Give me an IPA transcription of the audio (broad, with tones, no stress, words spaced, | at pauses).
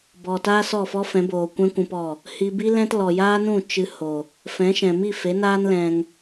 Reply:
bɔ˨taː˦ sɔ˦˨fɔ˦fɛ̃˨˦boː˨ kʷɛ̃˦kʷũ˧pɔ˦˨ | hiː˧bi˦ lɛ̃˦t lɔ˨jaː˦nũ˦˨ t͡ʃɨ˧ ho˨ | fɛ̃˨˦ʃɛ̃˨mi˦˨ fe˨˦naː˦nlɛ̃˧ŋ